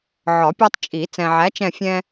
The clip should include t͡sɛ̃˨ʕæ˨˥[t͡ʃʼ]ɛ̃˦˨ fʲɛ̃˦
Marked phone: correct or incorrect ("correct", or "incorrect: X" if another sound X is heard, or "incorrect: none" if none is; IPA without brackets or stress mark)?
incorrect: t͡ʃ